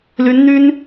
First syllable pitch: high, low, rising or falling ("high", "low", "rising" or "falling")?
rising